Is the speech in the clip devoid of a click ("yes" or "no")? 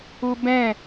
yes